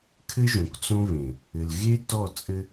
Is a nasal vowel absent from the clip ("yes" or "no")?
no